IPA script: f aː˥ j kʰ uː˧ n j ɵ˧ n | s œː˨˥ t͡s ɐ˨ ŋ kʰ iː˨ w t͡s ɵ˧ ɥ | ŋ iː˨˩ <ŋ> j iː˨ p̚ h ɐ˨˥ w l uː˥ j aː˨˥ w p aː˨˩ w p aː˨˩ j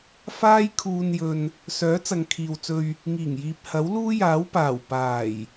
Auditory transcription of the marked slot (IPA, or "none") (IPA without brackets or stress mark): ŋ